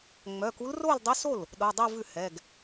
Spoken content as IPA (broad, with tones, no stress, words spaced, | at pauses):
ŋ͡mœ˩˧˩ku˧˥l ro˥˧ldˤʉ˧˥so˥˩l | ɗo˩˧˩dˤu˥˧vʉ˥˩ hɛ˩˧˩ɡ